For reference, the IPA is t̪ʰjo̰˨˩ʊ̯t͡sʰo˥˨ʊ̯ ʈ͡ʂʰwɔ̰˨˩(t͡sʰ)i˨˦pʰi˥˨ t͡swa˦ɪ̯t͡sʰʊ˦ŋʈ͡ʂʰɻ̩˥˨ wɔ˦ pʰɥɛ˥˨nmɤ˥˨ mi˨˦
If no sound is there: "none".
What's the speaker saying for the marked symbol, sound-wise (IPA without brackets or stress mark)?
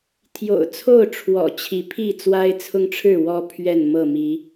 t͡ɕʰ